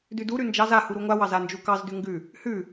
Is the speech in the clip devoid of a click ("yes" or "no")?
yes